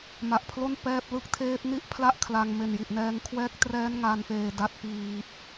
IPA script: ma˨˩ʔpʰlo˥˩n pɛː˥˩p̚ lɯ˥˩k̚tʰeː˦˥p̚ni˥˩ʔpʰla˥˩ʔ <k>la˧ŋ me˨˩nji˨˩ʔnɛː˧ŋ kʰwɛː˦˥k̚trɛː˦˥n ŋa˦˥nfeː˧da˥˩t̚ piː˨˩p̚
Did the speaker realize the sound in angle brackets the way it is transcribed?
no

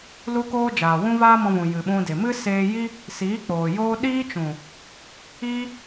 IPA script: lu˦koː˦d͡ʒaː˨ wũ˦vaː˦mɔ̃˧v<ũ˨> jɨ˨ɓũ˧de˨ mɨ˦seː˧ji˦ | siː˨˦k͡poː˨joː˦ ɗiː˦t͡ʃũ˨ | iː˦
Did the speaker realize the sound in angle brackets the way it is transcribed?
yes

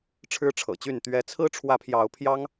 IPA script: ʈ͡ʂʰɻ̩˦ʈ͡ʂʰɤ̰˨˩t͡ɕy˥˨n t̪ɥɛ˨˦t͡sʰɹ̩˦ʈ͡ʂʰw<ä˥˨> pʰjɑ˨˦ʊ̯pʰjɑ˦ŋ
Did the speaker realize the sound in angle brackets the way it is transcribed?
no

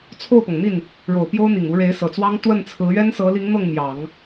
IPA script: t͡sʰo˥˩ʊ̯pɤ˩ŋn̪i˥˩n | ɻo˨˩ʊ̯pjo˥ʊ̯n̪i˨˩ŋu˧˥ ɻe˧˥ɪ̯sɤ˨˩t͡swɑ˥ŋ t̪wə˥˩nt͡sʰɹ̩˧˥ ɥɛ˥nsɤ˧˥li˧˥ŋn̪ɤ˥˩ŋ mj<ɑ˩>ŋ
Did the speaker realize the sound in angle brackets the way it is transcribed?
no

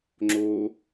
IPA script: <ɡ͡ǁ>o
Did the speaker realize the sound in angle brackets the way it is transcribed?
no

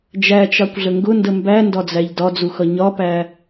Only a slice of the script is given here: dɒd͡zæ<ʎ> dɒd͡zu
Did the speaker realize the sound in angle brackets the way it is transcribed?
yes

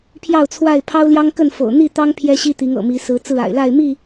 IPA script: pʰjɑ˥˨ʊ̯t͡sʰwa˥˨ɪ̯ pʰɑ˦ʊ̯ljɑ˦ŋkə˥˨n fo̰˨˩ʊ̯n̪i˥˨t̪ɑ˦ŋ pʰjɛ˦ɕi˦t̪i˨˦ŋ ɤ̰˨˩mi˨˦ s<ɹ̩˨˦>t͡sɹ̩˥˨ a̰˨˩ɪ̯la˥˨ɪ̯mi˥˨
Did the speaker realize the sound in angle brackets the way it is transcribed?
yes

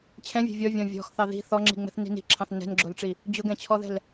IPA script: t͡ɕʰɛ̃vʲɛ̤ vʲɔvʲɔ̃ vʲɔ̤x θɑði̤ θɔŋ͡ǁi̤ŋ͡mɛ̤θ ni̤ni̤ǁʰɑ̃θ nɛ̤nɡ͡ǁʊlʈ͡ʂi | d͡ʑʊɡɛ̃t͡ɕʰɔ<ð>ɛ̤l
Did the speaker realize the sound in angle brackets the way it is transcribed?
yes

